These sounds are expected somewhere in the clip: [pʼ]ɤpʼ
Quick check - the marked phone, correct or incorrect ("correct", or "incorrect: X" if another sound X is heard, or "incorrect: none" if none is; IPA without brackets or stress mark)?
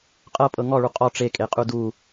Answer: incorrect: qʼ